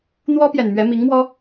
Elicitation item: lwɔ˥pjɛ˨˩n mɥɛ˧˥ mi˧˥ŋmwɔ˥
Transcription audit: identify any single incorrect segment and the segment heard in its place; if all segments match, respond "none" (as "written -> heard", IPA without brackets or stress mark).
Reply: l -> n̪